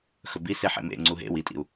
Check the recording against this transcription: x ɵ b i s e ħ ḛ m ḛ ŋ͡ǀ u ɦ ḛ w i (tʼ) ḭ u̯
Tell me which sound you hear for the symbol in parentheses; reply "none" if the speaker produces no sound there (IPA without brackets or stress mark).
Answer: tʼ